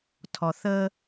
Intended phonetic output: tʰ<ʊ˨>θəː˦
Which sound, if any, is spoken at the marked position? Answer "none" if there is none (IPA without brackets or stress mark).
ɔ˨